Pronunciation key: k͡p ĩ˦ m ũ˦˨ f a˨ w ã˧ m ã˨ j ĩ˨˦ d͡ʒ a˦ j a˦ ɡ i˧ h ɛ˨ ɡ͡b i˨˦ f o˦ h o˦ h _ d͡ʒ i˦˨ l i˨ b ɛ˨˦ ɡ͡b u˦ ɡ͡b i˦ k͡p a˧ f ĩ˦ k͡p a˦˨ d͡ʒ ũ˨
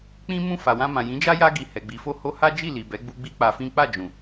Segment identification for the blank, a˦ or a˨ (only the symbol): a˦